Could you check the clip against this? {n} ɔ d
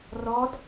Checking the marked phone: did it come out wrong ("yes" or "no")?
yes